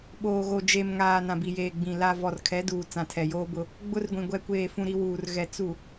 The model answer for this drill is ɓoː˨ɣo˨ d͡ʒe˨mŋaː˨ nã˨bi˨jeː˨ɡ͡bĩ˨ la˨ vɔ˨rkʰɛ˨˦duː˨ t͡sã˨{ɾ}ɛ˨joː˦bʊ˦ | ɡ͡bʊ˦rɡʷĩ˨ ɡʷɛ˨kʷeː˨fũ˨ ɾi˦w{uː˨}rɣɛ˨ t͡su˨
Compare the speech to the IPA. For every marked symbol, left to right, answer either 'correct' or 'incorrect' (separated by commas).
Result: incorrect, correct